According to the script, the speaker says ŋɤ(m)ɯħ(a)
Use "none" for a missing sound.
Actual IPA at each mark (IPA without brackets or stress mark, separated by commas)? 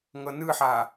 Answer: n, a